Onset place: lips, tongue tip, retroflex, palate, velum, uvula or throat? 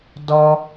tongue tip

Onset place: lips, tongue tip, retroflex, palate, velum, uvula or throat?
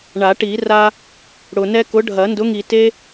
retroflex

